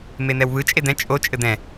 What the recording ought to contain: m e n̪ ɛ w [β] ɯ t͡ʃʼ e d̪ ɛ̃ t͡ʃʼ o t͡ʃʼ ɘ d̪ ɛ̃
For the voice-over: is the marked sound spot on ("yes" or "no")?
yes